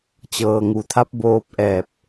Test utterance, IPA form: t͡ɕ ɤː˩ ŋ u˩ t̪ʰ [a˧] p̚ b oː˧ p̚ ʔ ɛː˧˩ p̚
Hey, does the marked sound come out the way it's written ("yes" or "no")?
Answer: no